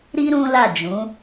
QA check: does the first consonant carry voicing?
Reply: yes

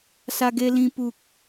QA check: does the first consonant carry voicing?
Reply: no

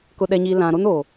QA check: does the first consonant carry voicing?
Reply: no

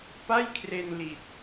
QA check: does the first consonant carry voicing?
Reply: no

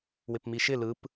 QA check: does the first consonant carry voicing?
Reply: yes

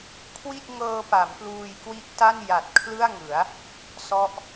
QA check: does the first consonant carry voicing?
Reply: no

